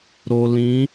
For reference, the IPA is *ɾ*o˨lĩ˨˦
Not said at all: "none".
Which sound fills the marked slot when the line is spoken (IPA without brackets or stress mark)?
ɾ